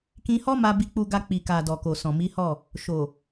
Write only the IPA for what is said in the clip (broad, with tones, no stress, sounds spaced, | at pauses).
k ĩ˧ h ɔ˦ m a˧ b i˧ k͡p u˧ ɡ a˧ k͡p i˨ k a˨ d ɔ˨ k o˨ s ɔ̃˨ m i˨˦ h ɔ˦˨ | ʃ o˨